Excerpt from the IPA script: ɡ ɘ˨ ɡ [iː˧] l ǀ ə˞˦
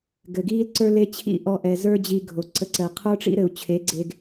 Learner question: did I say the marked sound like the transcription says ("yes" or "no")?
no